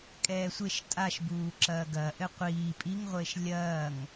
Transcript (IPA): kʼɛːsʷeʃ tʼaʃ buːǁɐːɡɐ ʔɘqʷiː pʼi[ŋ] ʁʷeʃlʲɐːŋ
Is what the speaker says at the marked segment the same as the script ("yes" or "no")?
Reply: yes